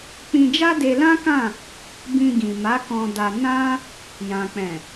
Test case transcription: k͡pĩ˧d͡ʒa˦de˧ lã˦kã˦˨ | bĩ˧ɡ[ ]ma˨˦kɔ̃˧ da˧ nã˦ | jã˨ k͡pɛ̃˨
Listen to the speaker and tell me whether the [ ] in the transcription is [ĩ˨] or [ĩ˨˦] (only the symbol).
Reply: ĩ˨